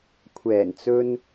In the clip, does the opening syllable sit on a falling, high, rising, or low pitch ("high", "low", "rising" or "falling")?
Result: low